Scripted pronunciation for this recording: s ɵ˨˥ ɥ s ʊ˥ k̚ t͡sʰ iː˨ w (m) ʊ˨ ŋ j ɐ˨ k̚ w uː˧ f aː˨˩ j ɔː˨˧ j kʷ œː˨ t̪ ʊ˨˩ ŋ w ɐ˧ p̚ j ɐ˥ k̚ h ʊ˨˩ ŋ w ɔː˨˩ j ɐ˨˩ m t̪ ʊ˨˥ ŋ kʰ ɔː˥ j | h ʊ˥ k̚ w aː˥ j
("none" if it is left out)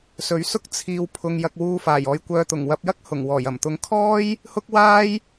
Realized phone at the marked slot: pʰ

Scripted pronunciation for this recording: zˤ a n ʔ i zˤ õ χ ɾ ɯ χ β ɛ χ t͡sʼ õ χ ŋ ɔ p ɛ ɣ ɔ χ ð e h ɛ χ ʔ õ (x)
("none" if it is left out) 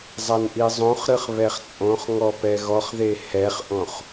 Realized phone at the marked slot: χ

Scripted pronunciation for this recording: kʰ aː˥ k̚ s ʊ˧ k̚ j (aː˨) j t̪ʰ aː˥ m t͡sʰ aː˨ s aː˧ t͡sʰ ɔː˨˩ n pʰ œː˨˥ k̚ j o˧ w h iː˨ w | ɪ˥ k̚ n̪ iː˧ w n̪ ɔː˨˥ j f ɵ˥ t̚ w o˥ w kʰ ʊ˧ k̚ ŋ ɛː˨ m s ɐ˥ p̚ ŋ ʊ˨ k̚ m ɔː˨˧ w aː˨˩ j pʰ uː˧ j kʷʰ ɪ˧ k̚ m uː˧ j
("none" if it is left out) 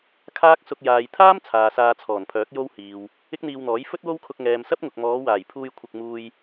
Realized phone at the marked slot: aː˨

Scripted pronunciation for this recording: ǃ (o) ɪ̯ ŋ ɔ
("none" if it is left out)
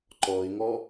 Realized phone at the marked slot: ɔ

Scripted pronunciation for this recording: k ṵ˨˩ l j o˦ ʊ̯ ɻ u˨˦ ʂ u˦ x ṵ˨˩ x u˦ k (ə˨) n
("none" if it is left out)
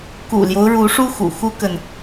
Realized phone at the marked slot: ə˨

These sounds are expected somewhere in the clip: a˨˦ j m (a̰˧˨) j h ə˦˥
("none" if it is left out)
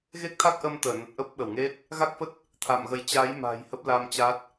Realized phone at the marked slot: a̤˨˩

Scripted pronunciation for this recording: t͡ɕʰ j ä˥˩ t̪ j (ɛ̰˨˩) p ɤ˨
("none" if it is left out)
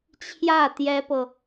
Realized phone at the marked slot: ɛ˥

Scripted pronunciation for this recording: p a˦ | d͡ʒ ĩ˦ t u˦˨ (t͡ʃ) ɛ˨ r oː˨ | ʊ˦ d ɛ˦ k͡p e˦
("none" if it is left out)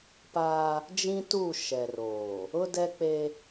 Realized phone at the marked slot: ʃ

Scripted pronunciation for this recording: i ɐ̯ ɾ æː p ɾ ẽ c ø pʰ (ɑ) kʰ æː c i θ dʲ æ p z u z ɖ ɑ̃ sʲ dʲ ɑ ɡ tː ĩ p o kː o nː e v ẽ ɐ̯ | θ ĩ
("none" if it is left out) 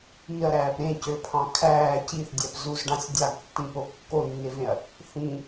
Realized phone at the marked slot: ɑ̃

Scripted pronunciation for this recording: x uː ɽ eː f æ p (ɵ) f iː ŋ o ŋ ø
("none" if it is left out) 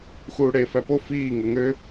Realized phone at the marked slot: o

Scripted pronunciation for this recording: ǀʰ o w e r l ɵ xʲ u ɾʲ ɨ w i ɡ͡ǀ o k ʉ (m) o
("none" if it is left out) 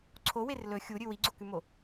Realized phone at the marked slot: m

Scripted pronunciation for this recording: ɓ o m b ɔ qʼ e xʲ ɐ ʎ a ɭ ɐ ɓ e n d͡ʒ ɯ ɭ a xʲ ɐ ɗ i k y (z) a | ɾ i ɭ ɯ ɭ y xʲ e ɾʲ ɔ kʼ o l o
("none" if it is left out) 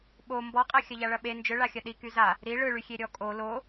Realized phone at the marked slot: z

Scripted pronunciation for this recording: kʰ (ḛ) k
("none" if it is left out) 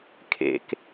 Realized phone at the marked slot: ḛ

